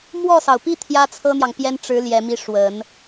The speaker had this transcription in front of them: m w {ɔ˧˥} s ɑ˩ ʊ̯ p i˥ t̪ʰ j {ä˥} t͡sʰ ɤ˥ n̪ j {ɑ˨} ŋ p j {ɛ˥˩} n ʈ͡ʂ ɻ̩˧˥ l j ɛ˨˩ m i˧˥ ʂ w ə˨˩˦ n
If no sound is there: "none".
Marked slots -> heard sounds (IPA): ɔ˥˩, ä˥, ɑ˨, ɛ˥

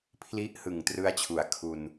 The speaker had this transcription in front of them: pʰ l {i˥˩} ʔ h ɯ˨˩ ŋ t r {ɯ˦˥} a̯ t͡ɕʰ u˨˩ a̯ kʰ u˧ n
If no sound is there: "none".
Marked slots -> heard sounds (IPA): i˦˥, ɯ˦˥

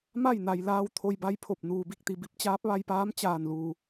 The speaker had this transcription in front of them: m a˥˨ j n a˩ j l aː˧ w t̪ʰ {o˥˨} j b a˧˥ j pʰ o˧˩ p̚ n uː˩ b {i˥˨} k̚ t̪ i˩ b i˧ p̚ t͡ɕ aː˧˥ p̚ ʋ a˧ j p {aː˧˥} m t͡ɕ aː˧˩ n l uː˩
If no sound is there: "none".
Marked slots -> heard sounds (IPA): o˧, i˥˨, aː˧˥

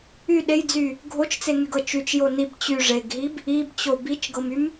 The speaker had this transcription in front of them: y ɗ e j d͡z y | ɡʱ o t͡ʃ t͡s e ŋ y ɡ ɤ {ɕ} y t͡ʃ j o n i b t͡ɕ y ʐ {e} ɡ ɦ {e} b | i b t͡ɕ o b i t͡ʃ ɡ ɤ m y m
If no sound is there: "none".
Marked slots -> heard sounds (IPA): t͡ʃ, e, i

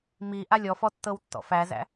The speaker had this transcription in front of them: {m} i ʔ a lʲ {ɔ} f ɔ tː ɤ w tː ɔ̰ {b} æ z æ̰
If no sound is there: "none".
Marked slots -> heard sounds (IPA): m, ɔ, f

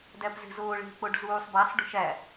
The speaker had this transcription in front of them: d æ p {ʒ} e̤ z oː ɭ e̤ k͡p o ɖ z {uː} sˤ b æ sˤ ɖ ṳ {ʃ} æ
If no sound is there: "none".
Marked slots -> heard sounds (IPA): z, uː, ʃ

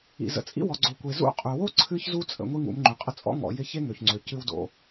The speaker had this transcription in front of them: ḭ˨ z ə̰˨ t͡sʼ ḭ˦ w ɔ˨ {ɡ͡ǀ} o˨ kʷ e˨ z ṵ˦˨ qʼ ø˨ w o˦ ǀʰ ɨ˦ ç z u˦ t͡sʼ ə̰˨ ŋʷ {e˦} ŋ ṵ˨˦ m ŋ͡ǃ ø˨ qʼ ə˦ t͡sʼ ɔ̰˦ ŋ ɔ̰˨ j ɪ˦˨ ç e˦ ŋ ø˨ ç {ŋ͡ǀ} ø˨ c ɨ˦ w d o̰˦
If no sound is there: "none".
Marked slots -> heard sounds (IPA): ɡ͡ǀ, i˦, ŋ͡ǀ

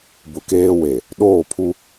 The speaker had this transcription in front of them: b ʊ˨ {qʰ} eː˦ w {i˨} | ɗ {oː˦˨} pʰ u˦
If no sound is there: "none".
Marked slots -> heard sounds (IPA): k, e˨, oː˦˨

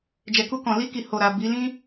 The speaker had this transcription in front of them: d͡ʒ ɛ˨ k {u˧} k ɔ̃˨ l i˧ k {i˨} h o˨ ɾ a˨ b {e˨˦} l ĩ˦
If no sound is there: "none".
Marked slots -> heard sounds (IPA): u˧, i˨, i˨˦

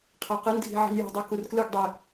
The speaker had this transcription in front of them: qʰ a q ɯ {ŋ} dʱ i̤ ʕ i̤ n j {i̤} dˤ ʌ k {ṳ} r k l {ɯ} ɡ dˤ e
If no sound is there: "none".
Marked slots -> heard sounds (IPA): n, i̤, u, ɯ

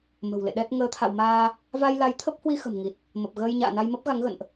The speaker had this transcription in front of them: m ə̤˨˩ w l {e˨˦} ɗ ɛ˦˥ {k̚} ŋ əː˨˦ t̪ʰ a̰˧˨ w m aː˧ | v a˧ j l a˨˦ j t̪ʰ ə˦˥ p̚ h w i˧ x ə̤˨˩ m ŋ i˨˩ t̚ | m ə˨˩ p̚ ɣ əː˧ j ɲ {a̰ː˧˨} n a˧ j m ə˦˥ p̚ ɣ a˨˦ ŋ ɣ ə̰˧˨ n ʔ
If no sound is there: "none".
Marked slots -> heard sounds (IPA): ḛ˧˨, t̚, a̰ː˧˨

